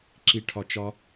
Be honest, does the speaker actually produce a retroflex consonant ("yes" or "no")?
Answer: yes